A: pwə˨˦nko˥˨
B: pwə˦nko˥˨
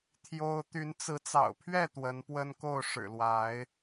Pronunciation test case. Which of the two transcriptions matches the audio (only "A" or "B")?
B